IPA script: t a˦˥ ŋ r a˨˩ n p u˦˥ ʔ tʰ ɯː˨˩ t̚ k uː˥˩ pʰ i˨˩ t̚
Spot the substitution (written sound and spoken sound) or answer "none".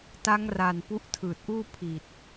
k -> ʔ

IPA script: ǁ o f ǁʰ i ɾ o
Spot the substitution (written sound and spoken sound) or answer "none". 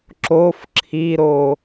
none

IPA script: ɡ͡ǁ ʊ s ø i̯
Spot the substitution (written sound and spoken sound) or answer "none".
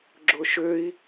s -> ʃ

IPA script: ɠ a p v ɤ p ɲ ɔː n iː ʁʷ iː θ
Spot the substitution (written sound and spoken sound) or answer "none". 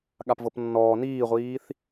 ɲ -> nː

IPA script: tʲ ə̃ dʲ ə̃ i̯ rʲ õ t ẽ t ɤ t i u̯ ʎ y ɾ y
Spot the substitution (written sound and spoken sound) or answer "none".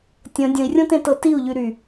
none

